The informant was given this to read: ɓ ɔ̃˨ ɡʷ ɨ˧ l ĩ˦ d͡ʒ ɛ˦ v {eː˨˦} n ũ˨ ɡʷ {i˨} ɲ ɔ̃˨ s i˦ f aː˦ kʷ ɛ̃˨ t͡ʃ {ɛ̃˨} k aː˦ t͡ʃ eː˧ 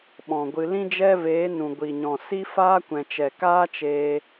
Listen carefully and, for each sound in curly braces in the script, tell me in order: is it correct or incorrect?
correct, correct, incorrect

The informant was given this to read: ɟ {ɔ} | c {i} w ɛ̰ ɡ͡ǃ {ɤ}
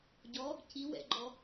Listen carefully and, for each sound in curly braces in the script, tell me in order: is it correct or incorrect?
correct, correct, incorrect

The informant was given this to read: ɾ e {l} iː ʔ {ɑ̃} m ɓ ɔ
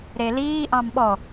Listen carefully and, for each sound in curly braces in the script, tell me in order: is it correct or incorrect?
correct, correct

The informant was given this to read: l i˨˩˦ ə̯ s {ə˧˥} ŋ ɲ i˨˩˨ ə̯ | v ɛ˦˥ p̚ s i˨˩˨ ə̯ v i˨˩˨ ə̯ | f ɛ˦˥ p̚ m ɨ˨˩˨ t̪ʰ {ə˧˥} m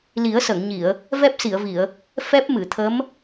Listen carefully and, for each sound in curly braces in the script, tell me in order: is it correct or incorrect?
incorrect, correct

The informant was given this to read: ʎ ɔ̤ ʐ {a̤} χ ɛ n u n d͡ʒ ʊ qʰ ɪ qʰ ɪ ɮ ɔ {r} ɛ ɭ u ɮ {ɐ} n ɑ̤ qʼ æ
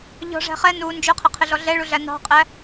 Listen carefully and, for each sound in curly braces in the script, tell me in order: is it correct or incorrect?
incorrect, incorrect, incorrect

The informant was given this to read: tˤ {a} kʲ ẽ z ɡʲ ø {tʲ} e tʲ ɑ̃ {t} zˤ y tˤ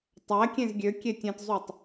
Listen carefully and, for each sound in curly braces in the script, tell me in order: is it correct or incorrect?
incorrect, incorrect, correct

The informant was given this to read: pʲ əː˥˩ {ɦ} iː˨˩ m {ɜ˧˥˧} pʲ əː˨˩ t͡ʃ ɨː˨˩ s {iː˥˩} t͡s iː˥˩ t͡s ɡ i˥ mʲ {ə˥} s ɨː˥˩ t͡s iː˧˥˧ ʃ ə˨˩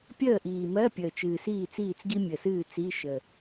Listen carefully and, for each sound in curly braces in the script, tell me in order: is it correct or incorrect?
incorrect, correct, correct, incorrect

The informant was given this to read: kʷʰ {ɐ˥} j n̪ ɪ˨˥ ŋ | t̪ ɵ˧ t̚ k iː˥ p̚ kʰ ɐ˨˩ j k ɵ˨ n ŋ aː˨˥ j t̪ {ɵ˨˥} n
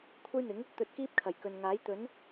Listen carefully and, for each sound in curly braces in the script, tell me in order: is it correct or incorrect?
correct, correct

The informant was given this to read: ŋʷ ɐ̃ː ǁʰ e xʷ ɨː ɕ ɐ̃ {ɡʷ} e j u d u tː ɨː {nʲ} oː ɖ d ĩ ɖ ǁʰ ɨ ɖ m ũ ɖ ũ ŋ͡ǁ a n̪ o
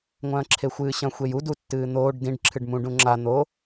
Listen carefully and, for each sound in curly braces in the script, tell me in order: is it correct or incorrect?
incorrect, incorrect

